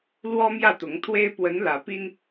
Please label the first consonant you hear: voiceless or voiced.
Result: voiced